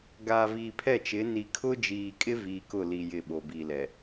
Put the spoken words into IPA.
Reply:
ɡ aː˨ v iː˨ pʰ ɛ˦˨ t͡ʃ ɪ˨˦ n i˨ kʰ ʊ˦ d͡ʒ iː˨ kʼ ɪ˦ v iː˨ k ʊ˦˨ l i˨ j ɪ˨ ɓ o˨ b iː˨ l ɛ˨

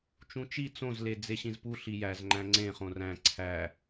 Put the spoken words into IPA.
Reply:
t͡ʃ ũ t͡ʃ i t͡s õ z l e d͡z e ɕ ĩ z p u ɬ i j æ z ŋ͡ǃ æ̃ ŋ͡ǀ ẽ χ õ r æ̃ ǀʰ æ

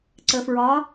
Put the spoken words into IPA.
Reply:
ǀ ə˩ f ɹ ɒ˩˧

